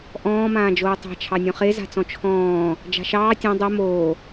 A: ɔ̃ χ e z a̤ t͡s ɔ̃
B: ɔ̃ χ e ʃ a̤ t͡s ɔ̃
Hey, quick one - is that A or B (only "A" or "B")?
A